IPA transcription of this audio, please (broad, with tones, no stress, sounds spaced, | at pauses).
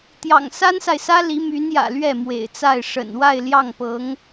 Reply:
t̪ j ɑ̰˨˩ ŋ s a˥ n s a˨ ɪ̯ s ä˥ l i˧˥ m y˧˥ n j ä̰˨˩ l ɥ ɛ˥˩ m w ḛ˨˩ ɪ̯ t͡s a˥˩ ɪ̯ ʂ ə̰˨˩ n w a˥˧ ɪ̯ l j ɑ˥˩ ŋ p ɤ˧˥ ŋ